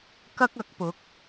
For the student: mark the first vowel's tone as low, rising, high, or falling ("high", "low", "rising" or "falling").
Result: high